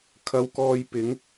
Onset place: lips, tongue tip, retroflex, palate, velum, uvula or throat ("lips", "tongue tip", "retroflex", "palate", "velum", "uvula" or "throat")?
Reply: velum